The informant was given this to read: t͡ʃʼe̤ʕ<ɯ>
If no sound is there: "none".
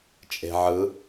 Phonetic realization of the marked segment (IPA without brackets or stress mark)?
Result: ɯ